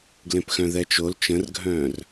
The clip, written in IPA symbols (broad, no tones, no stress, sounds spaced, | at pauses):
ɡ l ẽ p x œ̃ ð ɛ t͡ʃ o l t͡ʃ ə̃ r ɡʱ œ̃ː r